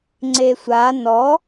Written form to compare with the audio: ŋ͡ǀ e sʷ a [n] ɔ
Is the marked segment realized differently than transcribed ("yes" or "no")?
no